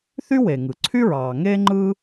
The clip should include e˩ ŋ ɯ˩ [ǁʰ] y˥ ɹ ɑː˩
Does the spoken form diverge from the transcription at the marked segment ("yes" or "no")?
yes